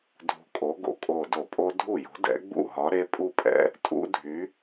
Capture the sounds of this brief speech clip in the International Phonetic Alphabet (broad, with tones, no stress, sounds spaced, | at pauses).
dʱ ṳ˧˩ kʼ o˨˥ ɡ o̰˧˩˧ kʼ o˧˩ d o˧˩˧ pʼ o˦˥ dʱ u˥˩ j o̤˨˥ d ɛ̰˨˥ ɡ͡b ṵ˥˩ ɦ ɒ˨˥ ɾ e˦˥ pʼ u˥˩ pʼ ɛ̰˦˥ | tʼ ṵ˦˥ dʱ y˨˥